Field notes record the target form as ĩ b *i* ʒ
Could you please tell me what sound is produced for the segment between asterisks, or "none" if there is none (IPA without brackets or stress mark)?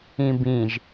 ĩ